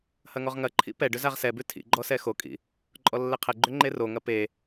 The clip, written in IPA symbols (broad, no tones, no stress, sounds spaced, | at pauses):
h ɐ ŋ ɔ ʁ ŋ ɐ ǃʰ ḭ p ɛ ɖ ʏ z a ʁ s ɛ b ʉ tʰ ḭ ɡ͡ǃ ɔ s ɛ x o kʼ ḭ | ǃʼ ɔ lː ɛ qʰ ɛ ɡ͡ǃ ʏ ŋ͡ǃ e r o ŋ ɐ p e